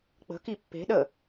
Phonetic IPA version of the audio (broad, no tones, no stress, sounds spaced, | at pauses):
k͡p ə̤ k i pː e̤ ɗ ə